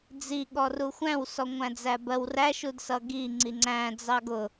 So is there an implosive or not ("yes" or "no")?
yes